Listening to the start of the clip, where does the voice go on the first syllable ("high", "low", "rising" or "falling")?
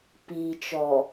low